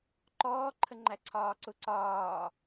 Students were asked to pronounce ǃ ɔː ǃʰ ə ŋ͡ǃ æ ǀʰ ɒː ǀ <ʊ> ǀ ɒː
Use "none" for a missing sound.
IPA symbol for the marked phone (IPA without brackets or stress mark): ʊ